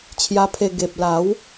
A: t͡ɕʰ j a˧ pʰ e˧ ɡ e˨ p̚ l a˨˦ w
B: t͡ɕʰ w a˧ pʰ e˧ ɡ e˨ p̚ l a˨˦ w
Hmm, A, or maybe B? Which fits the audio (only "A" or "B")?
A